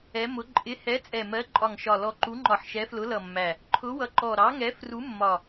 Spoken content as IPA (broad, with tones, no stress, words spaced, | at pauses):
ɛ˨˦mʊ˨˦ ǃʼɪ˨˦hɛ˨˦ t͡sʼɛ˨˩mɜ˨˦ǃʼɒ˨˩ŋʃɒ˨˩ lɔ˨˩ǃu˨˦ŋ͡ǃɒ˨˩ħ ʃɛ˨˦flʊ˨˦lʌ˨˩mːæ˨˩ | ǃʰʊ˨˦wʌ˨˩ǃɔ˨˩ ɾɑ˨˦ŋɛ˨˦ fru˨˦mːɒ˨˩